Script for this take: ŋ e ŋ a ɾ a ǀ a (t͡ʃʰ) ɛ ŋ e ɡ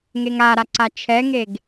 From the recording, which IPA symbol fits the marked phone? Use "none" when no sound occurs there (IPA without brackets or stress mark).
t͡ʃʰ